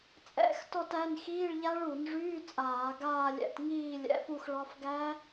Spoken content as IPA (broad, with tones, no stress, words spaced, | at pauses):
t͡sʼɛ̰˧˥˧xtɔ˥˧tæ˧˥˧n xiː˧˥˧ɭʎa˦˥ɭu˧˩˧nʐyː˧˥˧ t͡sʼaː˧˩˧ɡaː˥˧lʲɛ̰˧˥˧t ŋiː˥˧ lʲɛ̰˧˥˧fu˥˧xɭɒ˦˥f ɡæ˦˥